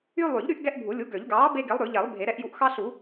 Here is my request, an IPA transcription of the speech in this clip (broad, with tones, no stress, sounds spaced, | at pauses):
y˦ lˠ y˨˩˦ ʎ ɾ y˦ ʔ ɡ ɛ˦ ʔ bʱ u˨˩˦ lʲ u˨˥ ɡ ø˨˩˦ ʎ ɡ ɑː˨˥ b e˦ ɡ e˨˥ lˠ ɾ ʉ˨˩˦ ʎ ɛ˨˩˦ lˠ bʱ e˨˩˦ ɾ ɛ˨˥ ʔ j u˨˥ ʔ x ɑ˦ ɬ u˨˩˦